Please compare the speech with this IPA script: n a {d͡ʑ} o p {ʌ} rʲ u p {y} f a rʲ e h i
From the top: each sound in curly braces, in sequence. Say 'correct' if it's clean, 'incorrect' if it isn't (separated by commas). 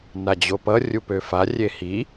correct, correct, incorrect